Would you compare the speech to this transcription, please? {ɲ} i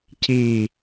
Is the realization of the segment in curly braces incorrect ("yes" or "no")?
yes